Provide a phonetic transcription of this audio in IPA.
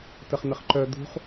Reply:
t ə χ n̪ ə χ ǃ œ d̪ ṳ χ

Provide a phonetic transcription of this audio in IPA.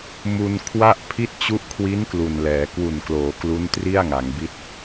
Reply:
m u˧ n kʰ w a˥˩ ʔ pʰ i˦˥ t̚ t͡ɕ u˦˥ ʔ kʰ w i˦˥ n k l u˨˩ n l ɛː˩˦ k w u˨˩ n k l oː˩˦ k l u˦˥ n t r i˥˩ a̯ ŋ a˩˦ ŋ b i˦˥ t̚

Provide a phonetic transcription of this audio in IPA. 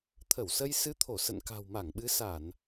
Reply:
t̪ʰ ə˧˩ w s ə˧ j s ɨ˧ t̪ʰ o˧˩ s ə̰˧˨ n k a̤˨˩ w m a˧˩ ŋ ɓ ɨ˨˦ s a˧˩˨ n

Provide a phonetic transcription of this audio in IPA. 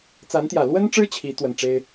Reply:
t͡s a˧˥ n t̪ j ä˨˩ l w ə˥ n ʈ͡ʂ ɻ̩˥ t͡ɕʰ i˧˥ t̪ w ə˨˩ n ʈ͡ʂ e˥ ɪ̯

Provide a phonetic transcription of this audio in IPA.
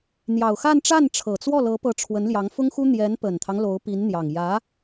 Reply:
n̪ j ɑ˨˩ ʊ̯ x a˥˧ n ʈ͡ʂ a˥˩ n ʈ͡ʂʰ ɤ˨˩ t͡s w ɔ˥˩ l ɤ˧˥ p ɤ˧˥ ʈ͡ʂʰ w ə˧˥ n l j ɑ˧˥ ŋ f ʊ˥ ŋ x u˥ n̪ j ɛ˧˥ n p ə˨˩ n t̪ʰ ɑ˦ ŋ l o˧˥ ʊ̯ p i˧˥ n n̪ j ɑ˨˩ ŋ j ä˧˥

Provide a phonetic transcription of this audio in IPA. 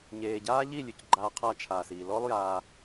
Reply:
ɲ eː˨ ɟ aː˦ ʎ i˦˨ lʲ ʉ˨ c ɡ͡ǃ aː˧ qʰ a˧ t͡ʃʰ aː˨ s iː˨ l ɔ˦ lˠ j aː˧

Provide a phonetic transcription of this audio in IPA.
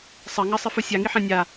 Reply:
sˤ ɐ ŋ ɐ sˤ ɨ f u sʲ a ŋ i ħ ã nʲ a

